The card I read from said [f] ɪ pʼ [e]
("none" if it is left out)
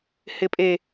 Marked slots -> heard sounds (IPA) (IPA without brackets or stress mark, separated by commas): h, e